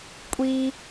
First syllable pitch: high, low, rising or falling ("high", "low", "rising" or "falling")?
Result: high